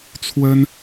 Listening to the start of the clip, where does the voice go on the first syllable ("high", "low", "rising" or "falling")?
high